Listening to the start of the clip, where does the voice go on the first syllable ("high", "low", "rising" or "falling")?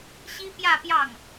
high